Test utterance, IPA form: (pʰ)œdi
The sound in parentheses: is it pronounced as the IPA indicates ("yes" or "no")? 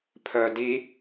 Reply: yes